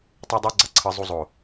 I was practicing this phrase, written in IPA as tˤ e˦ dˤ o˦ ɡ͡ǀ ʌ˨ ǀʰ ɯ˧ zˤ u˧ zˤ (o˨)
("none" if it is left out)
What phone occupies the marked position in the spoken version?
o˨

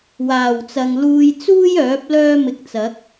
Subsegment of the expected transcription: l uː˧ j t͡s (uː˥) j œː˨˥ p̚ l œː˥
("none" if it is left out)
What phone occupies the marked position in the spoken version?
uː˥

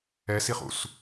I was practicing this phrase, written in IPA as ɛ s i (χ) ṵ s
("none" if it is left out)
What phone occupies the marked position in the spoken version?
χ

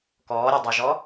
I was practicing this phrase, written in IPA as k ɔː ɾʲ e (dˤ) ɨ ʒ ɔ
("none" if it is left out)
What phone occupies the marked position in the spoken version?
dˤ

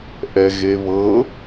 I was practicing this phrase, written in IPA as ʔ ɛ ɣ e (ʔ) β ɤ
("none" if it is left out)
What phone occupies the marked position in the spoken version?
none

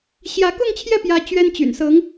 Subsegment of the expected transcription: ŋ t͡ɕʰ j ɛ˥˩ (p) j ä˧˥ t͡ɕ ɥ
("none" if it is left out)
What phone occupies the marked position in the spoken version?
p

